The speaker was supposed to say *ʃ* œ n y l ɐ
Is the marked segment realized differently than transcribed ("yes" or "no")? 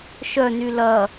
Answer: no